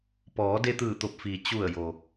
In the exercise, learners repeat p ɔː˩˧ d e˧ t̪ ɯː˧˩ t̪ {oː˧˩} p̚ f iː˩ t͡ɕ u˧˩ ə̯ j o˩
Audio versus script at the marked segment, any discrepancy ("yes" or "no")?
yes